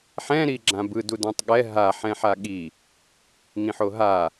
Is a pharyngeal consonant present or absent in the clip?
present